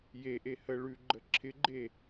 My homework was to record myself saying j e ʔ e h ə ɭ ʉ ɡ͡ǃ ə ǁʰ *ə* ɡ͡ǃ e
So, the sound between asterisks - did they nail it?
no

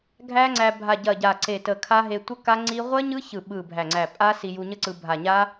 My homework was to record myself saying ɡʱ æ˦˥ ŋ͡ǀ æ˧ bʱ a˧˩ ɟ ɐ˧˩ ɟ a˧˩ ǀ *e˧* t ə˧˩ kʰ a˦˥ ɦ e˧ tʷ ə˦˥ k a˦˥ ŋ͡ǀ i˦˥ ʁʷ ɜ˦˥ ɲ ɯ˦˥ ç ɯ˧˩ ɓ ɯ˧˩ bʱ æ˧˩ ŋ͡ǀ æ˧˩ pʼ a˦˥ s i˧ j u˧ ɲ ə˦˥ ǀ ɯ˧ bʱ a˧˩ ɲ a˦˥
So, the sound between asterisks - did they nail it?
no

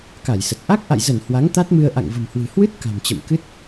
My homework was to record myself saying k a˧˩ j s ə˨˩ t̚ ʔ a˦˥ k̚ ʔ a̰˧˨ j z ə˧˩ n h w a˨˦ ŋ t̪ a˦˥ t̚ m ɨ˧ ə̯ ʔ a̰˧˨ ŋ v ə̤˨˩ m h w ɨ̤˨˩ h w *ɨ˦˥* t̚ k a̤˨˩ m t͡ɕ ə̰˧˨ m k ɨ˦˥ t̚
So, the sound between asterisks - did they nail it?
yes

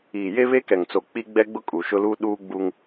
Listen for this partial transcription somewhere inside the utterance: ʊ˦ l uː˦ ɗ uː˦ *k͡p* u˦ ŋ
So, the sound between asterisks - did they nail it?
no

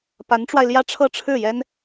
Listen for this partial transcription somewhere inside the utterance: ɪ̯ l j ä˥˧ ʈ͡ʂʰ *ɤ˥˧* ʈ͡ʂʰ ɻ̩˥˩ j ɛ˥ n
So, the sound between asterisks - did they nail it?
yes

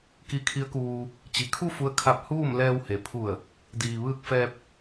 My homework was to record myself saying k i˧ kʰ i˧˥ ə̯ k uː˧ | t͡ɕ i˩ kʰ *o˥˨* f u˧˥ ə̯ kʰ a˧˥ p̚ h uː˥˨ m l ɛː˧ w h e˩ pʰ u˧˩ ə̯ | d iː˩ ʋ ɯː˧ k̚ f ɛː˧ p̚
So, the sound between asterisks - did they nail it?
no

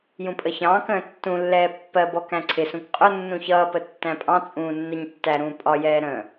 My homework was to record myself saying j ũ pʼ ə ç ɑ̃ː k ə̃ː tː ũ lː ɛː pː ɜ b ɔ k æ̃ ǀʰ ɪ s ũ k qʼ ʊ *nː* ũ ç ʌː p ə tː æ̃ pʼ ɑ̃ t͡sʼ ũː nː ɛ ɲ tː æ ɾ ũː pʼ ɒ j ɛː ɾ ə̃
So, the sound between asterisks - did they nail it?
yes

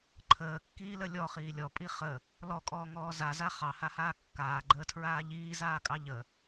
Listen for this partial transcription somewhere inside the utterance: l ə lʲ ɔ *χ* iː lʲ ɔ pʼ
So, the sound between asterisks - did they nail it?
yes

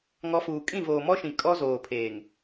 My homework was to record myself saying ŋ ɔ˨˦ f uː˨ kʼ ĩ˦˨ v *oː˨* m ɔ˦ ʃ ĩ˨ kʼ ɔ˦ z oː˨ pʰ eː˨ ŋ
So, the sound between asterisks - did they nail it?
yes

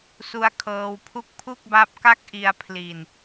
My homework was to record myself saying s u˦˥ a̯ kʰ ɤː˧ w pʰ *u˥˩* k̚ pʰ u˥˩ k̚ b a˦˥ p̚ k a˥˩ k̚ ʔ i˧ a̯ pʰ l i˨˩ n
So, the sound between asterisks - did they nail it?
yes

